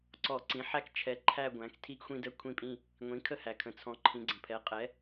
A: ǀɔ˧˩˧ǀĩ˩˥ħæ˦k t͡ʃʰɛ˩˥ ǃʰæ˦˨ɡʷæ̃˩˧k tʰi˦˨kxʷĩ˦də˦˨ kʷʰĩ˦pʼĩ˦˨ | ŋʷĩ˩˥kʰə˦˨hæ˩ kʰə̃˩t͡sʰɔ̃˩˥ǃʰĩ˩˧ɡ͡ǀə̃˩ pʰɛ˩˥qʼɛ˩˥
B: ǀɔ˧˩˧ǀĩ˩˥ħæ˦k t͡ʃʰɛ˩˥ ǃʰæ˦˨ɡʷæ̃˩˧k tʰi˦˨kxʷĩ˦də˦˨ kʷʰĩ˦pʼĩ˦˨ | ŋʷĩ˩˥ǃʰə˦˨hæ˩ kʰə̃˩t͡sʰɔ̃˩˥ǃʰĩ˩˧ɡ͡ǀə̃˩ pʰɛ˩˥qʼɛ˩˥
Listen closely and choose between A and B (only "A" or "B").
A